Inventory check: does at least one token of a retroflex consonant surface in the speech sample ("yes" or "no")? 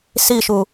no